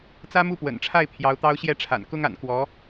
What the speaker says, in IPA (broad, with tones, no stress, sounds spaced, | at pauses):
t͡s ä˥ m u˥˩ p w ə̰˨˩ n ʈ͡ʂʰ a˥˩ ɪ̯ pʰ j ɑ˧˥ ʊ̯ t̪ ɑ˥ ʊ̯ ɕ j ɛ˥˩ ʈ͡ʂʰ a̰˨˩ n k ʊ˥ ŋ a̰˨˩ n k w ɔ˧˥